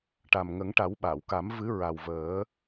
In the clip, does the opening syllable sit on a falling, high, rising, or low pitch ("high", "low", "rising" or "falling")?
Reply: low